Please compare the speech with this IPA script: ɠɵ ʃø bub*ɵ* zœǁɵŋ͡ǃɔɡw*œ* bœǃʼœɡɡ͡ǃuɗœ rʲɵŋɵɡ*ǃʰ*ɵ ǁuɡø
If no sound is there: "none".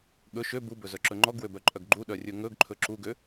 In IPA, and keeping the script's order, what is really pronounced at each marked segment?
ɵ, ø, ǃʰ

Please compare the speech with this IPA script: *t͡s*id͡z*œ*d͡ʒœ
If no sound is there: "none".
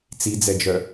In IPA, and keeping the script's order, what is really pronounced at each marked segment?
t͡s, ɛ

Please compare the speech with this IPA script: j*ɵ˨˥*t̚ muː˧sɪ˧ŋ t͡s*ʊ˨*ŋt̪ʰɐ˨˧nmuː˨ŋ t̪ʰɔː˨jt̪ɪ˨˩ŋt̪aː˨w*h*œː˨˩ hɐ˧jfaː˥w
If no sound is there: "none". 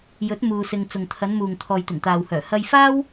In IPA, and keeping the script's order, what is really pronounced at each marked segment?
ɵ˨˥, ʊ˨, h

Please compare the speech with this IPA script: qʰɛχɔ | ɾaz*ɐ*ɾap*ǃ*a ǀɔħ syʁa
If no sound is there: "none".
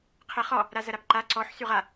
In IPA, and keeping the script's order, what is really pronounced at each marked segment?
ɐ, ǃ

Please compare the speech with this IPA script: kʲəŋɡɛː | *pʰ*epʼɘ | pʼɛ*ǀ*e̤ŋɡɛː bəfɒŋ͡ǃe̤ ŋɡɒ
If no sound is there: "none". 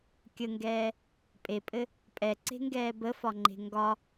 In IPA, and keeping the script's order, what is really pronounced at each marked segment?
pʼ, ǀ

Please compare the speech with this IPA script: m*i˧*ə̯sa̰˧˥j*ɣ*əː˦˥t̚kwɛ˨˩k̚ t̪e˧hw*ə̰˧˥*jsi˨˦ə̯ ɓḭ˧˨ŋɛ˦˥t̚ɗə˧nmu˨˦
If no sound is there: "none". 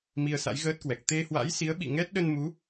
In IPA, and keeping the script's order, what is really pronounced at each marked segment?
i˧, ɣ, a̰˧˥

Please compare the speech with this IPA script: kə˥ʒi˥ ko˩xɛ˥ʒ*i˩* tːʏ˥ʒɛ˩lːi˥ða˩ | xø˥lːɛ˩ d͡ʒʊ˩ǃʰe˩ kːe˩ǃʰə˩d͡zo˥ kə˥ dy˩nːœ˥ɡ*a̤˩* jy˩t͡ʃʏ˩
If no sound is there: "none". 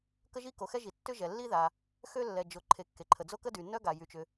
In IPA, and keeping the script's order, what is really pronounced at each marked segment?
i˩, a˩

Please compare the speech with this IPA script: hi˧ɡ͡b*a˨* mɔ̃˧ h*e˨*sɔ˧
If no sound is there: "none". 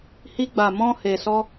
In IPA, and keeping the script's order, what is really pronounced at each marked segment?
a˨, e˨

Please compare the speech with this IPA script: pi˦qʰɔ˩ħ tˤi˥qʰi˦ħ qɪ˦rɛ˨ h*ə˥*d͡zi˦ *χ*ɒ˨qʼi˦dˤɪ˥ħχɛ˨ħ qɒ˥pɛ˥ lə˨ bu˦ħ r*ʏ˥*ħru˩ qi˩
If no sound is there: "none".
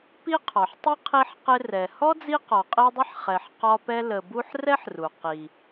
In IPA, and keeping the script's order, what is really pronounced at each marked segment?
ɔ˥, q, ɛ˥

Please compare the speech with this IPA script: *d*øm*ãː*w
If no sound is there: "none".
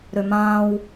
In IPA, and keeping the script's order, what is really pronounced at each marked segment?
ɾ, ãː

